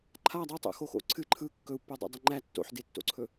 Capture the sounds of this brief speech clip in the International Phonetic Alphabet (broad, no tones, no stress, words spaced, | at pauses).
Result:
ǃʰa dˤɯtˤo̰xoxo̰ ǀʰɨ ǃʰɯ kːɵu̯pːodˤo̰dˤɨ ŋ͡ǃæ tːo̰ħdetːo̰ǀʰɵ